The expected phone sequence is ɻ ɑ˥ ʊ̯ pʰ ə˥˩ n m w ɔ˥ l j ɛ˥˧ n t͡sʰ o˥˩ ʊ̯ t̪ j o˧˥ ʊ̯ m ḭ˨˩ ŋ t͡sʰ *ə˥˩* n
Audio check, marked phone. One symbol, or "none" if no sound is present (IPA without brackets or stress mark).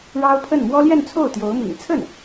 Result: ə˥˩